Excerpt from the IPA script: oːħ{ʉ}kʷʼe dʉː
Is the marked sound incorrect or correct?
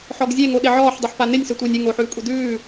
incorrect